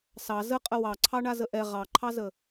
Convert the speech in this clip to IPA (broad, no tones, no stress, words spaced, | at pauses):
sɑ zəqʼə wɑǀʰɑɳazə ʔɛ ʁɑǃʰɑzə